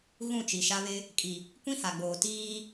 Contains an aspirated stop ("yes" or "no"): no